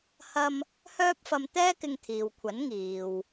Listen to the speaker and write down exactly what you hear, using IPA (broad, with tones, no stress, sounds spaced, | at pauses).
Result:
h ɐ˥ m | h œː˥ p̚ f ɐ˧ m t̪ ɛː˥ k ɪ˧ ŋ t̪ʰ iː˨ w kʷʰ ɐ˨˥ n ŋ iː˨ w